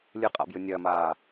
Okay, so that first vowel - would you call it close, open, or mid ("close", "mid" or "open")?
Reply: close